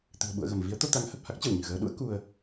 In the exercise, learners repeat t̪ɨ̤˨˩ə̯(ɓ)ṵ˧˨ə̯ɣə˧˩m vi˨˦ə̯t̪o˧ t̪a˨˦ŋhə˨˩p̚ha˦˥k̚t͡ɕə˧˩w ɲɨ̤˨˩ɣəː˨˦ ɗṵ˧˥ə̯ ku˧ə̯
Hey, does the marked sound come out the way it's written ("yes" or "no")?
yes